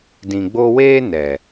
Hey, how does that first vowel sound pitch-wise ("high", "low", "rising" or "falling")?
low